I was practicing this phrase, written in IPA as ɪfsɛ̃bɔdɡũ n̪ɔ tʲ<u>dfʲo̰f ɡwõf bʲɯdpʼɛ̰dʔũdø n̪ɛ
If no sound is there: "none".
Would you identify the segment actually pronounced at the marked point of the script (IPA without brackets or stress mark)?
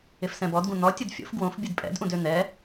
ɯ